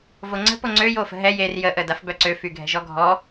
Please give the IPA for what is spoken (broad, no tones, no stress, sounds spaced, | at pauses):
v o ŋ͡ǀ ə̤ p o ŋ͡ǀ ø j o f ə̤ ɦ ɛ j e r j ə ʔ ə d a f b œ ǀ ø f y ɡʱ ɛ̤ ʒ ɔ ɡʱ ɔ